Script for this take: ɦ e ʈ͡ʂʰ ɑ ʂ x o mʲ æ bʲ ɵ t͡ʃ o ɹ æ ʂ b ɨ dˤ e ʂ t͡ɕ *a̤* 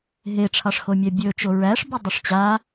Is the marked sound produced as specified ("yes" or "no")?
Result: no